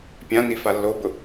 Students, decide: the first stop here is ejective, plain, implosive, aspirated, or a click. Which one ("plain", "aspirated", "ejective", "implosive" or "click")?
plain